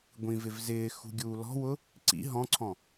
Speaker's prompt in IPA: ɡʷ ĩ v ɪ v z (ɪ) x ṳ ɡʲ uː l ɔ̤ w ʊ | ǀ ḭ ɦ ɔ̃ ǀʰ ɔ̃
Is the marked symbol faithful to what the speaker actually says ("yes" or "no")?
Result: no